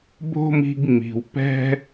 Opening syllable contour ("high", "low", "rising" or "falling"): high